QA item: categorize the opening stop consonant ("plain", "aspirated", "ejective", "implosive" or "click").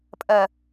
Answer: ejective